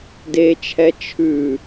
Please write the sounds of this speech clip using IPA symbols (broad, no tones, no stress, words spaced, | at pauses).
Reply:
det͡ʃʰɛ t͡ʃʰʉ